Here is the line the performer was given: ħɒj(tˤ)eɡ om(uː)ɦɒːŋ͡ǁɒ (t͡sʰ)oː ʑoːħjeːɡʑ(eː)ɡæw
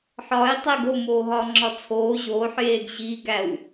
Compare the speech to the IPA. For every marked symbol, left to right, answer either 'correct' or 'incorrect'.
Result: correct, incorrect: oː, correct, incorrect: iː

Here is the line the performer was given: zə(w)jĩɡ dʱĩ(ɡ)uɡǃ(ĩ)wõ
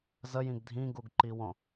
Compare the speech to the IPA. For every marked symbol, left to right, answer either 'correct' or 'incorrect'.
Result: incorrect: none, correct, incorrect: i

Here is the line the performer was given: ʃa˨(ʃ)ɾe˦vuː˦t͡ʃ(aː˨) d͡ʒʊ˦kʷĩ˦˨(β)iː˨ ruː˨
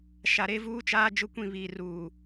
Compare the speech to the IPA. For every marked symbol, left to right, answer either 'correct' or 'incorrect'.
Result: incorrect: none, incorrect: aː˦, correct

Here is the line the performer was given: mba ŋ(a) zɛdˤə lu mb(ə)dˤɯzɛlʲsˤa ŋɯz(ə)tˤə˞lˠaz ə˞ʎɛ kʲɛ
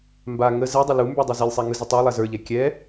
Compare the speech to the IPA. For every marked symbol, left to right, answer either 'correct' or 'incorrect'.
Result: incorrect: ə, incorrect: ə˞, correct

